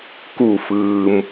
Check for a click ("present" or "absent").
absent